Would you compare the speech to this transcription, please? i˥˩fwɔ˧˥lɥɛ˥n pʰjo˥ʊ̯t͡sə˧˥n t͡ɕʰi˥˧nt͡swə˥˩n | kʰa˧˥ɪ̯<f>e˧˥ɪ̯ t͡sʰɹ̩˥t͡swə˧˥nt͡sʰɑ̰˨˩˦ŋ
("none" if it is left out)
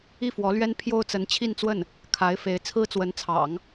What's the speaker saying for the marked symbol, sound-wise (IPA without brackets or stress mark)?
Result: f